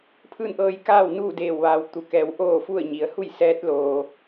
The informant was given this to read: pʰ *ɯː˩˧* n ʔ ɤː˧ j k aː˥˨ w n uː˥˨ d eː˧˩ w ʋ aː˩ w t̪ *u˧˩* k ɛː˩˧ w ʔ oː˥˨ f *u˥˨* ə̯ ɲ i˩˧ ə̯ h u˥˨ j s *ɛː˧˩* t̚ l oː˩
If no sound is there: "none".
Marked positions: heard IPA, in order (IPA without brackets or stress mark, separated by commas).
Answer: ɯː˥˨, u˩, u˥˨, ɛː˧˥